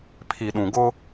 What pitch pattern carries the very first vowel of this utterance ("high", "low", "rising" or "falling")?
low